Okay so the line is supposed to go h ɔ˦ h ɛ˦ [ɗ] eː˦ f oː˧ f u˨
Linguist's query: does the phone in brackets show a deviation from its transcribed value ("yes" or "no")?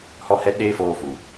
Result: no